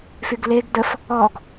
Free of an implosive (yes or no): yes